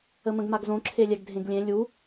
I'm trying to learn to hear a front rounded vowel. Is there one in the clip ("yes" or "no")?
no